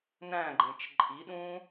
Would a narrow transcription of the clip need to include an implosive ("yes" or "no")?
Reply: yes